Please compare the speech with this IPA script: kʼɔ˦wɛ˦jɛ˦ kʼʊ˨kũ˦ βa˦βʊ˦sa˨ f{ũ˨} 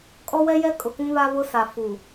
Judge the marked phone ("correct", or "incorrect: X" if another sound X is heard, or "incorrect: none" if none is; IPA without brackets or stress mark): incorrect: u˨